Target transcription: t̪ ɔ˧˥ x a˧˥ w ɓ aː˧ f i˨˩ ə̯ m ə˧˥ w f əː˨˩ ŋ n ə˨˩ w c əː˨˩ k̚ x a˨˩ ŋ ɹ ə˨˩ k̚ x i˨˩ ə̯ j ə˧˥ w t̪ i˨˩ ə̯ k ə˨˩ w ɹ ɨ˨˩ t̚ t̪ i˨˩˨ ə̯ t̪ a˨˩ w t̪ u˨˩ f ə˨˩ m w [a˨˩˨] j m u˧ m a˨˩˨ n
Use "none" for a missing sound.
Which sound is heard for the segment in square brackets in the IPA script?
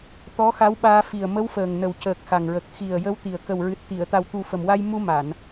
a˧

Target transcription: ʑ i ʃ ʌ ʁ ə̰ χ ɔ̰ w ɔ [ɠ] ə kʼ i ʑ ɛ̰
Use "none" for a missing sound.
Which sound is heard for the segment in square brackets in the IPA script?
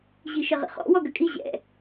ɡ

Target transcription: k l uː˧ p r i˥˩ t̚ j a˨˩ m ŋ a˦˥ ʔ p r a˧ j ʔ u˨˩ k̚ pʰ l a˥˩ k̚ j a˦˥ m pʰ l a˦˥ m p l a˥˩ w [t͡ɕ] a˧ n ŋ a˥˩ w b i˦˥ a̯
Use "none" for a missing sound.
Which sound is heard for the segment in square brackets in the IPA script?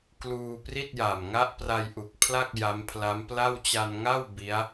t͡ɕ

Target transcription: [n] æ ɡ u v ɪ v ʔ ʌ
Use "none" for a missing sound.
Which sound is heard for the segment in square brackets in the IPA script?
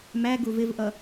m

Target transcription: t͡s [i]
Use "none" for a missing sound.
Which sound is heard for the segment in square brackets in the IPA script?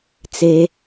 e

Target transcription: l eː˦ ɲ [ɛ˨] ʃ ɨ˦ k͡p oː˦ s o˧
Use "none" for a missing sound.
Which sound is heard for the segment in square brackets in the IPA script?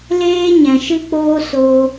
ɛ̃˨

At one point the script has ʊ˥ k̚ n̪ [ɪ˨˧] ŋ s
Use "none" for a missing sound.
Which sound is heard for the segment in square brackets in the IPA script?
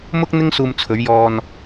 ɪ˥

